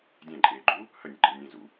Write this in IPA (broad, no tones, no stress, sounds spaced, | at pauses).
dʲ æ̃ ǃʼ eː ɡ͡ǃ uː | h ə nʲ ə̰ ɡ͡ǃ ə lʲ nʲ æ̃ z ṵ